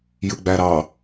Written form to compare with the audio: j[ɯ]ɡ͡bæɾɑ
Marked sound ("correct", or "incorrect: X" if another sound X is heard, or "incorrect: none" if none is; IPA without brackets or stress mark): correct